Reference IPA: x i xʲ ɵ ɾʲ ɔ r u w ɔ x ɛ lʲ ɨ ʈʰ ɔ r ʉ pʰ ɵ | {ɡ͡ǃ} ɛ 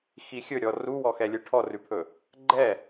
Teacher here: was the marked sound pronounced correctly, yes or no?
yes